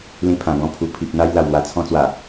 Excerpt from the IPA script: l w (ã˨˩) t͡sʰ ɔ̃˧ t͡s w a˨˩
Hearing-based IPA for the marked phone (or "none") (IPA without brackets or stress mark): a˨˩